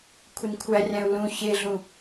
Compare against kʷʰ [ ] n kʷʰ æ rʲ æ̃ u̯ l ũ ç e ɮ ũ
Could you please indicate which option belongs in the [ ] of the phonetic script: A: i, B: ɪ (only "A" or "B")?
B